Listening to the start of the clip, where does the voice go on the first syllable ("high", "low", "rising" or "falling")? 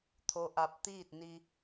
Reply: rising